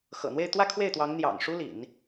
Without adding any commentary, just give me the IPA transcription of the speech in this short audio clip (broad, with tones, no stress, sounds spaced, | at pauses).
x ɤ̰˨˩ n̪ w e˥˧ ɪ̯ t̪ w ä˥˧ kʰ w e˥˩ ɪ̯ t̪ w ɑ˧˥ ŋ n̪ j ɑ̰˨˩ ŋ ʂ u˥ l ḭ˨˩˦ n